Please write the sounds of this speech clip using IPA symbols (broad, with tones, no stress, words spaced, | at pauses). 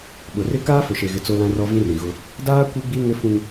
ɓʊ˨rɪ˦ kaː˦fʊ˨ʃe˨ɣɪ˨ t͡so˦lã˦rɔ˦ vĩ˦rĩ˨ɣʊ˦ | daː˦ kʷi˦ɡ͡bi˦ŋɪ˦fũ˦ŋ